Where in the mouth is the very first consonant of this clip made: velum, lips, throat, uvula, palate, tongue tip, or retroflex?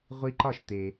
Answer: uvula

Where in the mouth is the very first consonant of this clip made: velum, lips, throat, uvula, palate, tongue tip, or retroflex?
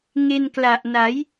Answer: velum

